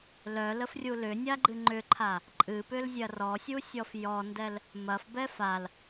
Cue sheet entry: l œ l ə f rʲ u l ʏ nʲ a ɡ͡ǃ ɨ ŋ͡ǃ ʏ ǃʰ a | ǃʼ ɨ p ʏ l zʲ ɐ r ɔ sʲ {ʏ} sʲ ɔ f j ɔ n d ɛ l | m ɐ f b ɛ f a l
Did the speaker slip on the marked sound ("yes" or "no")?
yes